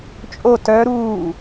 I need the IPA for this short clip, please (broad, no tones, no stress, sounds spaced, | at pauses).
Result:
t͡ʃʼ o t œ ɾ uː